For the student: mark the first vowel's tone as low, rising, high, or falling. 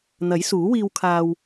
rising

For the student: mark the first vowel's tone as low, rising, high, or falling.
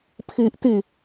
high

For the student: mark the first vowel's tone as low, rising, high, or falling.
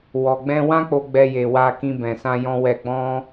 low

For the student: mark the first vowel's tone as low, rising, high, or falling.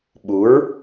rising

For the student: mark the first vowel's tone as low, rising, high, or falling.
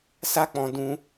high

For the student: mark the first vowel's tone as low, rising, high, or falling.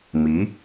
rising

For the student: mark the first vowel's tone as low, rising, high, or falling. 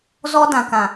high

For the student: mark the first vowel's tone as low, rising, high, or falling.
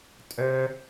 high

